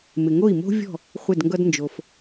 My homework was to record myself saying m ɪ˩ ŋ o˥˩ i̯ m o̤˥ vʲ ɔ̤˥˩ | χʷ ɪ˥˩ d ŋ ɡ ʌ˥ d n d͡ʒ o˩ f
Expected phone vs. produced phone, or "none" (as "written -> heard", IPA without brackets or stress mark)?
none